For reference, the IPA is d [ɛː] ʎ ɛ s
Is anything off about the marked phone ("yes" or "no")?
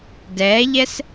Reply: no